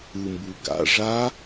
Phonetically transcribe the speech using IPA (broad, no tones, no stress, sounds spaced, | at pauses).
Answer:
ɯ m b u ɡ a̰ ʐ a